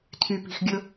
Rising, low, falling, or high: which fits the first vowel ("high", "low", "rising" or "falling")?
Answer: low